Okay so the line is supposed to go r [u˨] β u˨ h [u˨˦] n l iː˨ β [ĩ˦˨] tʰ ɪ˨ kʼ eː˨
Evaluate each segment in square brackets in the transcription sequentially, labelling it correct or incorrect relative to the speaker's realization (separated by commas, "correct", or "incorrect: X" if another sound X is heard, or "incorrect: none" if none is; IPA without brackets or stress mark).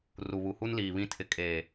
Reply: correct, incorrect: u˦, correct